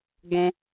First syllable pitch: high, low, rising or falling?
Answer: high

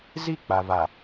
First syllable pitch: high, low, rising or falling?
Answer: falling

